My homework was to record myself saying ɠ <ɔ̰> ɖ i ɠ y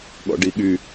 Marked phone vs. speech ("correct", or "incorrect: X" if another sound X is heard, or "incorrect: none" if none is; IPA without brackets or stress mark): correct